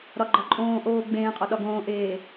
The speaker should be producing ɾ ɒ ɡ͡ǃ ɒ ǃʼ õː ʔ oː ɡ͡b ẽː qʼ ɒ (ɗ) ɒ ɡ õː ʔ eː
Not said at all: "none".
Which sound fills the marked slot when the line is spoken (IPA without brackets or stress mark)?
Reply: ɗ